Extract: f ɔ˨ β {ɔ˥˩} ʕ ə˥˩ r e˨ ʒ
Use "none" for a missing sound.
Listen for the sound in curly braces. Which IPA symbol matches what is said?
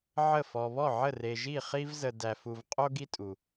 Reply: ɔ˥˩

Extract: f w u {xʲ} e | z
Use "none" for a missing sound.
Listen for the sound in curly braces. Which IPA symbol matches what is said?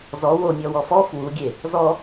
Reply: ɡʲ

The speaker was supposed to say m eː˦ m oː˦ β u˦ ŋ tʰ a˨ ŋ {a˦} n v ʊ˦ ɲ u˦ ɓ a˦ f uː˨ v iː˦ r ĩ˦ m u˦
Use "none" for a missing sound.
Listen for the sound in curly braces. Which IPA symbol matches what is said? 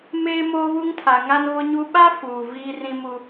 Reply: a˦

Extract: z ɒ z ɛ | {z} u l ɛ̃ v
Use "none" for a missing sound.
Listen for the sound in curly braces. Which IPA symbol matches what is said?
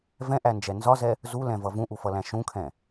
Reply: z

